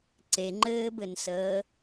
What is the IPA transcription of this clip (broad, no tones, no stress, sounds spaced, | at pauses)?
ǀ e ŋ͡ǃ ɘː b ɘ n s əː